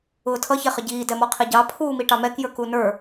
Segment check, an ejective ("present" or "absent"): absent